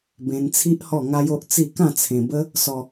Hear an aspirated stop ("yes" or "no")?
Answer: yes